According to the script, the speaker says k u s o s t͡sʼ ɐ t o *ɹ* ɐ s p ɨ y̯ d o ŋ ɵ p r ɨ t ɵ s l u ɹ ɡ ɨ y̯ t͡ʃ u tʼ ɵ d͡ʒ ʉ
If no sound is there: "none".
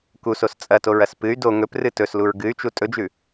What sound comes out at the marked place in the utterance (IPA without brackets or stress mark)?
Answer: ɹ